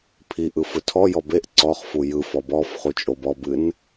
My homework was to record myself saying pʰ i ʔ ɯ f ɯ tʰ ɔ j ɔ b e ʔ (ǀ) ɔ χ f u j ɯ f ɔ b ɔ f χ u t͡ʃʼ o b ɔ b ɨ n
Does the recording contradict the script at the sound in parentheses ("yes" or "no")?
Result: no